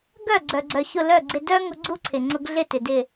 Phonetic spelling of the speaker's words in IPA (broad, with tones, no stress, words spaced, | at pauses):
ɡœ˥˩ɡ͡ǀœ˩ɡ͡ǀœ˩çʊ˧˩ lœ˥˩ ɡ͡ǀɪ˧dœ˥ ŋʊ˧ɡ͡ǀu˥ ǀʰɪ˩ ŋ͡ǀʊ˧ɡɮɪ˥˩tɪ˩ dɪ˧˩